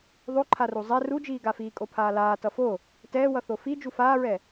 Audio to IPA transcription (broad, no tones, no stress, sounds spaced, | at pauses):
ðˤ o ǃʰ a r u zˤ ɛ r u d͡ʒ iː ɡ a f iː kʼ o pʰ aː l aː t ʌ f o | t ɛː w ʌ θ o f i d͡ʒ u f aː ɹ ɛ